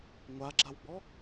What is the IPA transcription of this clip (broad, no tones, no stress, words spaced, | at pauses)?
ŋʷaɡ͡ǁawɡ͡bɔ